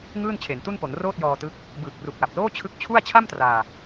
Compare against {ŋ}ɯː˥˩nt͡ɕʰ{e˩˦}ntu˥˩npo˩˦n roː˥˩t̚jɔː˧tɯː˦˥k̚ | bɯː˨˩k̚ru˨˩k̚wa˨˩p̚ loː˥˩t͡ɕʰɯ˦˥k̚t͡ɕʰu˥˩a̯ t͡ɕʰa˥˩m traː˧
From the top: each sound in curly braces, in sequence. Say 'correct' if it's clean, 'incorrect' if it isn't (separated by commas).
correct, correct